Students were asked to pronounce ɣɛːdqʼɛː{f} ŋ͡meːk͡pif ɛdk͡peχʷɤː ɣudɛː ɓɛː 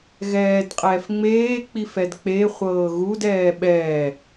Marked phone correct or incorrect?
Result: correct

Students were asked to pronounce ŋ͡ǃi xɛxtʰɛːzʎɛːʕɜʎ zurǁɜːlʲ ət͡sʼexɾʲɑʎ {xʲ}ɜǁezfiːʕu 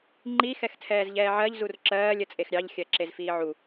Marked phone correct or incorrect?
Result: correct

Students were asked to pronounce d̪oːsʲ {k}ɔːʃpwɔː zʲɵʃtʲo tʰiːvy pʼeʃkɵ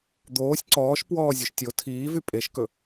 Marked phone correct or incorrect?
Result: incorrect: ǀ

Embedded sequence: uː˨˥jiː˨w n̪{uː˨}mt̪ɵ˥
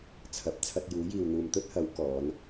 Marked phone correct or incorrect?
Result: correct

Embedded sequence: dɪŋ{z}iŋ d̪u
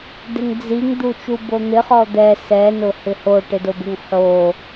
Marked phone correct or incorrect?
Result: incorrect: d͡z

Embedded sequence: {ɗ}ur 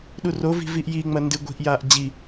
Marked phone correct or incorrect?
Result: correct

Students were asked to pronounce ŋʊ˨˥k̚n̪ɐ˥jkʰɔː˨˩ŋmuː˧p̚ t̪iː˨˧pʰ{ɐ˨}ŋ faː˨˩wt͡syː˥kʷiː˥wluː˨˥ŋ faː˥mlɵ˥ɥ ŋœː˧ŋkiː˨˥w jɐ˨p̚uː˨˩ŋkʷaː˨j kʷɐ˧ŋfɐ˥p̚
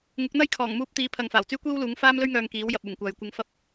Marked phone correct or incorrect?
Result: correct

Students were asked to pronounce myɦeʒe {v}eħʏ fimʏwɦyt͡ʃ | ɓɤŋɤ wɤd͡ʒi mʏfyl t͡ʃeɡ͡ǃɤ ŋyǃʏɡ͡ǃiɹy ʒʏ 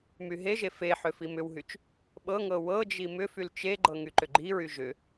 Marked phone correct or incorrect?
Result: incorrect: f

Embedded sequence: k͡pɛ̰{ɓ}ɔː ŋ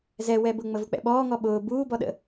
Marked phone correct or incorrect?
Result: correct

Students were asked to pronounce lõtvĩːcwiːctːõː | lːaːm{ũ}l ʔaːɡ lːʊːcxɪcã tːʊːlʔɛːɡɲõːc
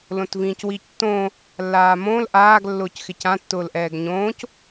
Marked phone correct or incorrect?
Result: incorrect: õ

